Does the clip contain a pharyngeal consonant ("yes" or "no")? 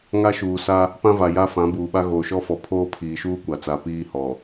no